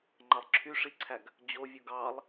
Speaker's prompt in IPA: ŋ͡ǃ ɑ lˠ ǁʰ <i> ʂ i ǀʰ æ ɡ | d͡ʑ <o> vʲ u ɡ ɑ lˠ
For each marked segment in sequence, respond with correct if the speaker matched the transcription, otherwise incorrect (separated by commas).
incorrect, correct